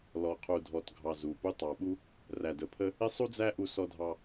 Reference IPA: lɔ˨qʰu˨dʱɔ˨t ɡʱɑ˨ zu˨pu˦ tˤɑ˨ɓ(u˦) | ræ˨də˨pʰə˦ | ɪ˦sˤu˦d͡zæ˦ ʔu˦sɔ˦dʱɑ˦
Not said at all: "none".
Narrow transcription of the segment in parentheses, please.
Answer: u˦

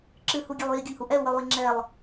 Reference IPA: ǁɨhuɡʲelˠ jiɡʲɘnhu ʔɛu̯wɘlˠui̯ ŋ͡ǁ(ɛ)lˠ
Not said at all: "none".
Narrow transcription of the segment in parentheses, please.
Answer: ɛ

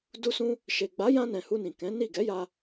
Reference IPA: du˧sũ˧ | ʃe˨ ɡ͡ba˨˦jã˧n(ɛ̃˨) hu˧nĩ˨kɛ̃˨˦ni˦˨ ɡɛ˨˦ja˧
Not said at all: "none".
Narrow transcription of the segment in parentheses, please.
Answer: ɛ̃˨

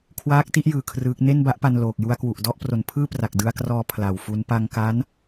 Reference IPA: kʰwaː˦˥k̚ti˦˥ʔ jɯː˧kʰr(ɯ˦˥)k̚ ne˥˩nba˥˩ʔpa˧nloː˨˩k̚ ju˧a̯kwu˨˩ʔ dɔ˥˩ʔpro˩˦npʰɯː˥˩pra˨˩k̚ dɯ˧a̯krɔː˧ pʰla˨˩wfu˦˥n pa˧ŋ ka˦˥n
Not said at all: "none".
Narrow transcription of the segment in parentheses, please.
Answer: ɯː˦˥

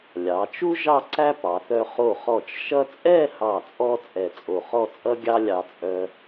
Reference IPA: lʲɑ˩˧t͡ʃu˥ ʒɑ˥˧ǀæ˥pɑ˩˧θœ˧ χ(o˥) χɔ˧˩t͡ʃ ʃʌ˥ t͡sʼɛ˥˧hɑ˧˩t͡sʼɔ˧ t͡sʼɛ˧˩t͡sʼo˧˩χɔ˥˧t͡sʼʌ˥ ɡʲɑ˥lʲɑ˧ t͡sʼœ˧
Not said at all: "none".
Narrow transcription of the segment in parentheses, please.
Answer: o˧˩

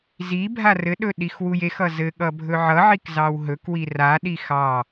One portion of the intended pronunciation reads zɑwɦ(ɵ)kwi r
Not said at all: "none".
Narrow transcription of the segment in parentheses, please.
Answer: ɵ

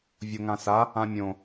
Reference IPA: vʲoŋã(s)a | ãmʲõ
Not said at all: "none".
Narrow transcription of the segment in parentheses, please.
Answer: s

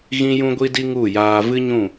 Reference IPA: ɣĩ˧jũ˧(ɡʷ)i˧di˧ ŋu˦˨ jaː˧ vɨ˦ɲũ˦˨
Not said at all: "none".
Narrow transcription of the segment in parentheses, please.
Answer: ɡʷ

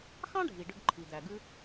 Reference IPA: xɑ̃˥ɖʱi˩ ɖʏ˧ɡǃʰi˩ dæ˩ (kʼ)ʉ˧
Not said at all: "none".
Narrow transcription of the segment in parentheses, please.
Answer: ɡ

